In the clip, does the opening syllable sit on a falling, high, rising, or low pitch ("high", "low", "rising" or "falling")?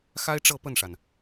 high